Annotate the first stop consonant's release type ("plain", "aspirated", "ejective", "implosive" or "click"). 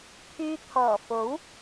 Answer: aspirated